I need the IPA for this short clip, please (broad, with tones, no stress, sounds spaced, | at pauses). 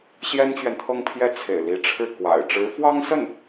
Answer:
ɕ j ɛ˥ n t͡ɕ ɥ ɛ˨ n t̪ʰ ɤ˥˧ ŋ pʰ j ɛ˥˩ t͡sʰ ḛ˨˩ ɪ̯ l i˧˥ ʈ͡ʂʰ ɻ̩˥˩ k w a̰˨˩ ɪ̯ ʈ͡ʂ ɻ̩˧˥ f w ɑ˥ ŋ s ə˥˩ n